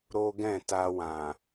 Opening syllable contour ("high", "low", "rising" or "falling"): high